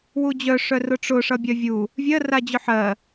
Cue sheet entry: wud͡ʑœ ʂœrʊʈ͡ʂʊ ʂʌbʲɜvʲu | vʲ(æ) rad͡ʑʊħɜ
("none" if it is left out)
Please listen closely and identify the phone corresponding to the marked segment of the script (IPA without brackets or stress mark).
ɜ